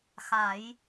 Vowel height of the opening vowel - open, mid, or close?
open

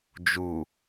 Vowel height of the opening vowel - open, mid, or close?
close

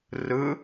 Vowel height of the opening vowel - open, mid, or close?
close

